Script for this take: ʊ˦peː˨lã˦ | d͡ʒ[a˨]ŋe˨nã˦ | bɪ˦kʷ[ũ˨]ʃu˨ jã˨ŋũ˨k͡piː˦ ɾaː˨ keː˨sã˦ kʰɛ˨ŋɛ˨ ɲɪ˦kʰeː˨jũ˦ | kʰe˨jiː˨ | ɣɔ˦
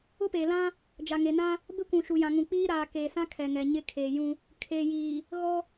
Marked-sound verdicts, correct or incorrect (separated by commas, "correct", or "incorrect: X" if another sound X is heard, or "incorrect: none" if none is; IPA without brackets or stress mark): correct, correct